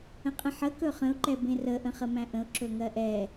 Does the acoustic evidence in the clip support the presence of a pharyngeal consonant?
yes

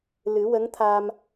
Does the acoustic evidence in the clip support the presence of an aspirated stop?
yes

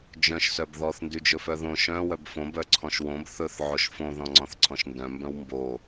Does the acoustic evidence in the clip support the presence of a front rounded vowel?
yes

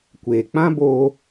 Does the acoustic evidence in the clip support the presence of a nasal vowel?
yes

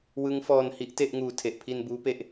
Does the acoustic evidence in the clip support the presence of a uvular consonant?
no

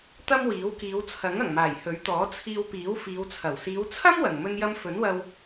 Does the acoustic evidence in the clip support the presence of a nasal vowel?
no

